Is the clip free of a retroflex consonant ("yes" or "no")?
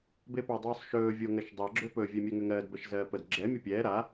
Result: yes